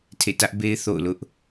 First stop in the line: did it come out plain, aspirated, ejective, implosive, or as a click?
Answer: aspirated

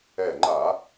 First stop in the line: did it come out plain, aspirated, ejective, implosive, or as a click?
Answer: click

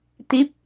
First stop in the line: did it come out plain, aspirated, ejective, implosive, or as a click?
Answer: plain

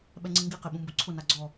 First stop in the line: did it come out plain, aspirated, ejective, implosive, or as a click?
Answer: implosive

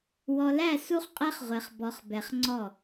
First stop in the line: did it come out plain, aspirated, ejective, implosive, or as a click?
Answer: ejective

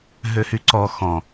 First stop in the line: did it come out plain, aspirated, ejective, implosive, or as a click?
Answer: click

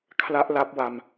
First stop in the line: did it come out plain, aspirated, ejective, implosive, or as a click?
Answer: aspirated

